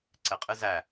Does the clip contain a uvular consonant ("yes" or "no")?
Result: yes